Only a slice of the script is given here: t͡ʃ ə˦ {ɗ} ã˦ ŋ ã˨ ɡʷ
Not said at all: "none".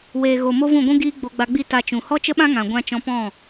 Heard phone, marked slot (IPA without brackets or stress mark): ɓ